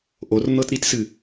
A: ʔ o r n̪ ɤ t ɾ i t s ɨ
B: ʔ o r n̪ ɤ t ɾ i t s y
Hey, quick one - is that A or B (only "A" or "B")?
A